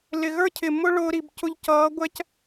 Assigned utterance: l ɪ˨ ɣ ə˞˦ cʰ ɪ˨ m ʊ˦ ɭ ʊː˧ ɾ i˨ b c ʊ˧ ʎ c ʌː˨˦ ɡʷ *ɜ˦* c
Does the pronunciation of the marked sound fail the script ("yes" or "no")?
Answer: yes